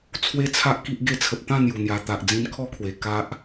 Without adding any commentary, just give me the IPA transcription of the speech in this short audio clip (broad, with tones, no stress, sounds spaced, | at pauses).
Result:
t͡sʰ w e˥˧ t͡sʰ a˦ ʔ k i˦ ʔ ɡ e˥˧ t͡sʰ ə˨ p̚ t̪ ã˥˧ n̪ j u˨˩ n̪ j a˨˩ t̪ a˨ ʔ d͡z ĩ˧ n kʰ ɔ˦ kʰ w e˨˩ k a˦ ʔ